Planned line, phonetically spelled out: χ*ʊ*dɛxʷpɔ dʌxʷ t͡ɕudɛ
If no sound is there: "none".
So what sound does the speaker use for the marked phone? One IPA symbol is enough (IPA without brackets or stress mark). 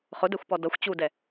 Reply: ʊ